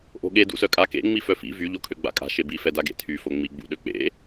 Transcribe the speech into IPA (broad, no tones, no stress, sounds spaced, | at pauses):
ʔ o̤ ɠ e d ṵ s œ kʼ a k ḛ ŋ͡m i f œ f ḭ v y ʎ o kʰ ø ɡ͡b a̰ kʼ a̤ ʃ e b i f ɛ d a ɡ ḛ tʰ y f o ŋ͡m i ɡ͡b ṵ ɗ ø k͡p ḛ